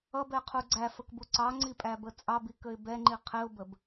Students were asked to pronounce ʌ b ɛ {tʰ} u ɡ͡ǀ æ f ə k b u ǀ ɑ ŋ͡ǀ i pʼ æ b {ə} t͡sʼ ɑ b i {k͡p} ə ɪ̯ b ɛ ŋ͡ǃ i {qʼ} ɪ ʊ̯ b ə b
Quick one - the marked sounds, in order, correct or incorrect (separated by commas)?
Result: incorrect, correct, incorrect, incorrect